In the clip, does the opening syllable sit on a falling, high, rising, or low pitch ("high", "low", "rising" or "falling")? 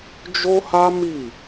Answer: high